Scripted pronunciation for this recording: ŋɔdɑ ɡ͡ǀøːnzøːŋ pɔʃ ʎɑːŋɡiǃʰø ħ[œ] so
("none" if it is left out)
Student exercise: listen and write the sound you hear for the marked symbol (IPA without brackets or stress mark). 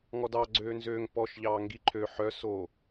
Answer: œ